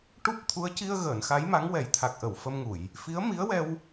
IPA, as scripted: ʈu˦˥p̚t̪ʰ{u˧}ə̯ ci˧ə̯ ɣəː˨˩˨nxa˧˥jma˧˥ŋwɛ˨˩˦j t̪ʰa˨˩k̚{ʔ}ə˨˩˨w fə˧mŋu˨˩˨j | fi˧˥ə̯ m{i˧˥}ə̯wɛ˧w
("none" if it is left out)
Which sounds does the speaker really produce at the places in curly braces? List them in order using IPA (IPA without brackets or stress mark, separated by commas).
u˧˥, ʔ, i˧˥